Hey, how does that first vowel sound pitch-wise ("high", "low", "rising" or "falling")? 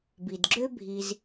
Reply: low